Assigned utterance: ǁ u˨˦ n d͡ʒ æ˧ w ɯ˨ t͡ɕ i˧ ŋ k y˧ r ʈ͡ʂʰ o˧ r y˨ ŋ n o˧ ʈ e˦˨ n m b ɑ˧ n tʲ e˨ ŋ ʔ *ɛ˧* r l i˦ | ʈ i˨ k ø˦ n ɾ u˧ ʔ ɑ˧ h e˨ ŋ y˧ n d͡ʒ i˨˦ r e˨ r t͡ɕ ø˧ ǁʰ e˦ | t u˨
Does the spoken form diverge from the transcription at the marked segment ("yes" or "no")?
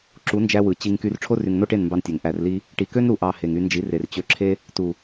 yes